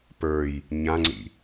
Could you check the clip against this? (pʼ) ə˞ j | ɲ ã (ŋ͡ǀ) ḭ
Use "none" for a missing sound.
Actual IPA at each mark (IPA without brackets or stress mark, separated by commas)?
p, ŋ͡ǀ